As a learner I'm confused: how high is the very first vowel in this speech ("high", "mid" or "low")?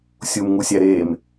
high